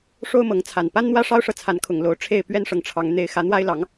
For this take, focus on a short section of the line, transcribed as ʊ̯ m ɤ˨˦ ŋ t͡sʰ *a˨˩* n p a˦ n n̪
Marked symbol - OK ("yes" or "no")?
yes